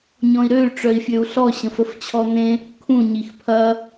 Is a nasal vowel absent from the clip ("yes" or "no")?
no